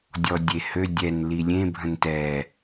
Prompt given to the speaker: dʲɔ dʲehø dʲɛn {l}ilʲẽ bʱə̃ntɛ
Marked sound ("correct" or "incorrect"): correct